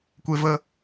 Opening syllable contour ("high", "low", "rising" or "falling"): high